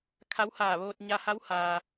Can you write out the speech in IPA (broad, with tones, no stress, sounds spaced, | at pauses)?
kʰ a˧˥ w h aː˧˩ ʋ oː˧ t̚ ɲ a˧ h a˧˥ w h aː˩